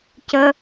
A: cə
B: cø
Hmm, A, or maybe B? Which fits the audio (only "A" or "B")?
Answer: A